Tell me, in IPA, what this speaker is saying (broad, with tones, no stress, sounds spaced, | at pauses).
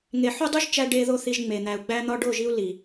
ŋ e˨ ħ u˦ dˤ u˦ ʒ t͡ʃ æ˧ ɖ e˧ ð o˦ θ i˧ ʒ ŋ͡m e˨ n̪ æ˨ u̯ ɡ͡b æ˧ n̪ ɒ˧ ɖ o˦˨ ʒ i˦ u̯ l i˨